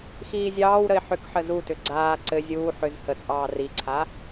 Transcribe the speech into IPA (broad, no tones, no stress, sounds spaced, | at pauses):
x iː zʲ ɑː w ɾ ə ɪ̯ ħ ʏ k ħ ə z u t ʏ ɡ͡ǀ aː ǀ ɘ zʲ uː ħ ʏ z h ə t͡sʼ ɑː r i ǀʰ a